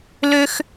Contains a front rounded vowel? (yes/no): yes